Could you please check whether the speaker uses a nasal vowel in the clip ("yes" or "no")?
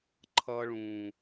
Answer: yes